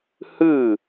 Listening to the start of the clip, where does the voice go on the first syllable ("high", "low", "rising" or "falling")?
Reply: falling